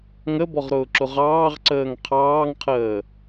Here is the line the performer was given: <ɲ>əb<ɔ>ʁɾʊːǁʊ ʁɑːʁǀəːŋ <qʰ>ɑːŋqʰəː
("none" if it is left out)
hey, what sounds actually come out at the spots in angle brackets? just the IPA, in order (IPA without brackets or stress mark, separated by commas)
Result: ŋ, ɔ, qʰ